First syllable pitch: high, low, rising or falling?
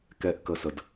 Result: falling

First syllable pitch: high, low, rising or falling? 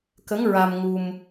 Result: rising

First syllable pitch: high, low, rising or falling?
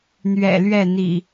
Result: low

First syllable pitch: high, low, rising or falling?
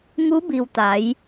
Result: rising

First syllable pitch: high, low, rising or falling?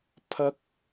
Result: rising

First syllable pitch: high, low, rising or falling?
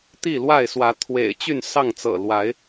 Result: falling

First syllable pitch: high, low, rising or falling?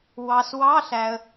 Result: low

